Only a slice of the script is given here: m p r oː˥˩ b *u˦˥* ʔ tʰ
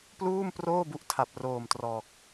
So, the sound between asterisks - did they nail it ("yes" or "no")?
yes